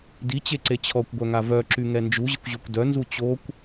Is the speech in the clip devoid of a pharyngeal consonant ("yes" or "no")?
yes